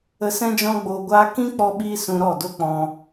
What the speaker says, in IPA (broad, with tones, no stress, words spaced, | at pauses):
ə˧sɛ̃˦ d͡ʒɔ̃˦ɡ͡boː˧ɡʷaː˦ kĩ˦k͡pɔ˧ɓiː˧ sũ˧ ɾɔ˦˨do˦k͡pɔ̃˧